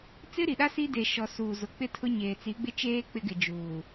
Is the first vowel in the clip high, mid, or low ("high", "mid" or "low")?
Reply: high